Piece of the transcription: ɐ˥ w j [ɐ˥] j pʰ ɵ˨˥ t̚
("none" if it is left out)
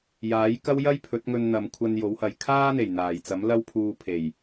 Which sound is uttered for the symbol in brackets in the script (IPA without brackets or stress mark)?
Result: ɐ˥